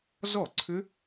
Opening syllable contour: falling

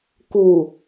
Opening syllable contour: low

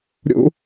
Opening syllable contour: high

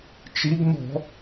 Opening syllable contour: rising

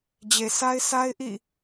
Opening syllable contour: low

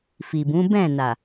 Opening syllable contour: low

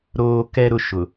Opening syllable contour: high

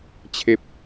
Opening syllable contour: high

